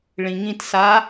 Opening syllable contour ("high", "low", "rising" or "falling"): low